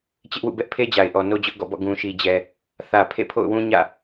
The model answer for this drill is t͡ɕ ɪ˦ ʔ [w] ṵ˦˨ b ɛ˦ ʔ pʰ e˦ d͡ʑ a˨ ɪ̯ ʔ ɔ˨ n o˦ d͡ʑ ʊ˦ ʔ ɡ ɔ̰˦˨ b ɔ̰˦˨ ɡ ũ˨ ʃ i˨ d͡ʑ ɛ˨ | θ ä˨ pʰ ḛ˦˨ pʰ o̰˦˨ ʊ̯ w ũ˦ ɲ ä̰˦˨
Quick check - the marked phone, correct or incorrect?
correct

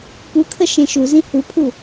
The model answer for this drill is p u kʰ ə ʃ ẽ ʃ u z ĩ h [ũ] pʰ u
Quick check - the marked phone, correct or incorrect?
incorrect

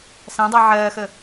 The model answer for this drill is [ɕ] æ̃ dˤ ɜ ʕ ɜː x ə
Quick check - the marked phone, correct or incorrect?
incorrect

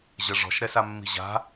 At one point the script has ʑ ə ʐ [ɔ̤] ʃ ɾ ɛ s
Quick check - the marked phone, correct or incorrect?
correct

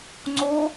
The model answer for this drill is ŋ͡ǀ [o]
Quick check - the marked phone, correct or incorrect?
correct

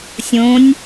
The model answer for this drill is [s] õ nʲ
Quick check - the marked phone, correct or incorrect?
incorrect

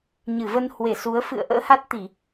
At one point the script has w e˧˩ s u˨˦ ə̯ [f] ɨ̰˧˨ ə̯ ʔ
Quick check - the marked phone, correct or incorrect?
correct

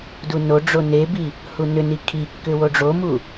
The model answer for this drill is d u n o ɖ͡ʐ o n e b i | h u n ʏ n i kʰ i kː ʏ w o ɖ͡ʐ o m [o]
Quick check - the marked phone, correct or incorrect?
incorrect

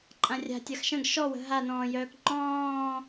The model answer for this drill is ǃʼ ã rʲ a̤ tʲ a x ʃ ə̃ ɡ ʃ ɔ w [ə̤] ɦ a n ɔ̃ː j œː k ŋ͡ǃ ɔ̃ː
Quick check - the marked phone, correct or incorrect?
correct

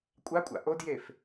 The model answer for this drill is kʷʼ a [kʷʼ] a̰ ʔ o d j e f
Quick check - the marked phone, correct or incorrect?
correct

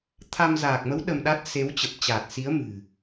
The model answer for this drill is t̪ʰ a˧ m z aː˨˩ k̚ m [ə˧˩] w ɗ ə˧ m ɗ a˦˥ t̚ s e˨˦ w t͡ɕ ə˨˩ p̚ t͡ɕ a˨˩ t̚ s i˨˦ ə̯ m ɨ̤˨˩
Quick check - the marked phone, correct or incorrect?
incorrect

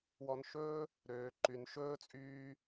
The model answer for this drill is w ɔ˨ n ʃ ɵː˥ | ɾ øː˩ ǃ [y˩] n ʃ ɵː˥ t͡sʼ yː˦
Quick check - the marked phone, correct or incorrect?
correct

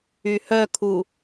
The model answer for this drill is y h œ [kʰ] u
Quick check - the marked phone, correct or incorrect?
correct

